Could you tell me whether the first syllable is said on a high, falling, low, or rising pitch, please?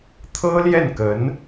high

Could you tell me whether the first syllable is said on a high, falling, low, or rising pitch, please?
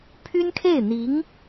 high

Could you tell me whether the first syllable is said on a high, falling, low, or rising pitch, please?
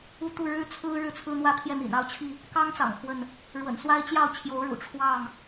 high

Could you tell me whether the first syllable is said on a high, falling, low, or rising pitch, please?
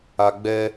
low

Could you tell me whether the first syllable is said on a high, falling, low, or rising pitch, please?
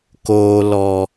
low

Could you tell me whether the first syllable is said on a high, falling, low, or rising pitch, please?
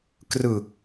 low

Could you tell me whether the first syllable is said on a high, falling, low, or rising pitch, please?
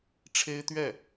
high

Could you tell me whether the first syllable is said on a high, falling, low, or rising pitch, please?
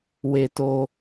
high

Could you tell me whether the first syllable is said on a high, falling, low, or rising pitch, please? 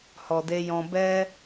low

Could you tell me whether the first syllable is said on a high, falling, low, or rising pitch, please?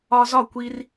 high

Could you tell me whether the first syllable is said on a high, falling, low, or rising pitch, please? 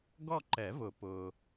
falling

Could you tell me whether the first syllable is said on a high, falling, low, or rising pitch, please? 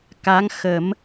rising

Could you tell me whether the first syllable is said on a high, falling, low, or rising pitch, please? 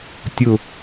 falling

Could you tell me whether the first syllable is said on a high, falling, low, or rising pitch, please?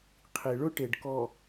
low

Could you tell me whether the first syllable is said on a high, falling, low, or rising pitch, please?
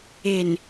low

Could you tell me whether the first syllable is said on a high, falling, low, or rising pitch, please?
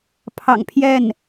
low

